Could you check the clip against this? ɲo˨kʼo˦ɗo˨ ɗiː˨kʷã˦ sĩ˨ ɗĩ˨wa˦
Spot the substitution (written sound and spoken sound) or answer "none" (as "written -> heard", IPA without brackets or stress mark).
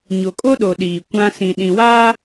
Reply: none